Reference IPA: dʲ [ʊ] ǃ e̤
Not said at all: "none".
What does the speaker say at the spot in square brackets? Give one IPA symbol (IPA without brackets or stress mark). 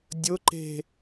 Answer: ʊ